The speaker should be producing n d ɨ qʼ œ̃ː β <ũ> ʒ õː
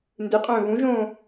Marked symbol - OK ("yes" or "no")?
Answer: yes